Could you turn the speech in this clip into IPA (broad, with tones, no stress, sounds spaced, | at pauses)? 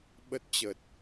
ɓ ə˦˥ t̚ t͡ɕ ə˨˩ t̚